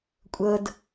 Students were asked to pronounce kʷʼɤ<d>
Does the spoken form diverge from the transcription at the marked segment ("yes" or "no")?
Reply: no